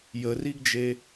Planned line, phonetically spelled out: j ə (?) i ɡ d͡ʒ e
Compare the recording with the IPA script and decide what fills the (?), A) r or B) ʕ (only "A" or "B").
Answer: A